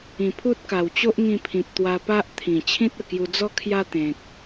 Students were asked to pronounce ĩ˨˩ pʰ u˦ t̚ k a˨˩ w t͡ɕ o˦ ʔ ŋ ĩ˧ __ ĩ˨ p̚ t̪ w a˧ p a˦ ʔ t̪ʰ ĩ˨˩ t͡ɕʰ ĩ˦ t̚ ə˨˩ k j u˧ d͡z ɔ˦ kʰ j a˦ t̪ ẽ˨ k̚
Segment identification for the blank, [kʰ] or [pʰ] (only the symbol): pʰ